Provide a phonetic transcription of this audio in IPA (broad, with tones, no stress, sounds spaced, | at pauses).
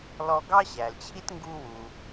l ɔ˧ ɡ ɑ˥ ɕ æ˩ l t͡ɕʰ i˥ t ŋ ɡ u˧ w u˩